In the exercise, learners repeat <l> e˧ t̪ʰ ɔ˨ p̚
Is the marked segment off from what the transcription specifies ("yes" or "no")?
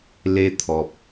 no